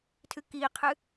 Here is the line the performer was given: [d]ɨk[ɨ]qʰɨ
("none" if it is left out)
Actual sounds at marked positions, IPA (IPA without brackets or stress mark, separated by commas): tʰ, i